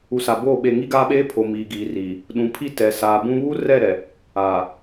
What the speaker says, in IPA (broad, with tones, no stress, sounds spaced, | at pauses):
u˨ s a˨ b oː˦˨ ɓ e˨ ŋ i˦ ɡ aː˦ ɓ eː˦ pʰ o˨ m iː˨ ɡ iː˨ r iː˨ | ɗ ũ˨ pʰ i˦ t ɛ˨ s aː˨ b ũ˦ β uː˦ r ɛ˦˨ ɾ ɛ˨ | aː˨